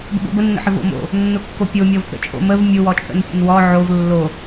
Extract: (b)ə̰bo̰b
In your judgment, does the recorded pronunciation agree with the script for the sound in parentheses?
yes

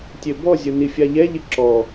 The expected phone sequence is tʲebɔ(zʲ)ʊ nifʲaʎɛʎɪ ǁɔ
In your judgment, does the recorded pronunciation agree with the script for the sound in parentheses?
yes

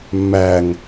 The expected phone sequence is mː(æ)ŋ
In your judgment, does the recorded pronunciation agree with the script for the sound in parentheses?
yes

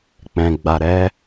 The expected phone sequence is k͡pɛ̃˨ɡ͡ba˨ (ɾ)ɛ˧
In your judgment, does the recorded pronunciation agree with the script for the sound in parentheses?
yes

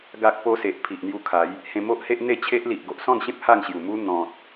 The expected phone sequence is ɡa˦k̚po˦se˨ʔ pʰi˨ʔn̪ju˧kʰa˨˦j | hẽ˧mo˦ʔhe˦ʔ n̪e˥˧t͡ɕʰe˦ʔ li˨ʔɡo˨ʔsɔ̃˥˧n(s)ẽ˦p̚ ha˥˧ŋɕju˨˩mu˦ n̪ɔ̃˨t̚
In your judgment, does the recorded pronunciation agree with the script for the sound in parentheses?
no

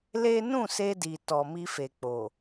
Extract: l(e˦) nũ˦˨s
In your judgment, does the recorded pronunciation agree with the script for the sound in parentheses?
yes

